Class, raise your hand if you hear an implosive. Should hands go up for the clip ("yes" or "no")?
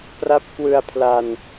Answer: no